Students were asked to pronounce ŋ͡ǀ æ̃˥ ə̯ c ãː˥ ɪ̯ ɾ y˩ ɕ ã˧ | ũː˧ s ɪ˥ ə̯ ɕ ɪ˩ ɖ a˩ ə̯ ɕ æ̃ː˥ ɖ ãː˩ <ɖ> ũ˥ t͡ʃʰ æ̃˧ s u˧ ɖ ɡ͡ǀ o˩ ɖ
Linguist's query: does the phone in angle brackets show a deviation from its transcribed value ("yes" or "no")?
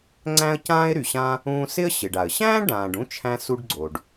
no